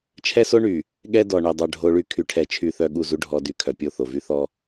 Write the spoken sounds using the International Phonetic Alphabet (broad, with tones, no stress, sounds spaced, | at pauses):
t͡ʃʰ ɛ˦ s o˦ ɳ y˨ | ɠ ɛ˦ d ɔ˨ ɳ ɛ˨ dˤ œ˨ ɖʱ o˨ ɭ y˨ kʰ y˨ ʈʰ ɛ˨ t͡ʃʰ y˨ θ œ˨ ɠ u˦˨ z u˦ ɖʱ ɔ˨ d y˨ kʰ œ˨ pʲ o˦˨ θ o˨ v y˦ θ ɔ˦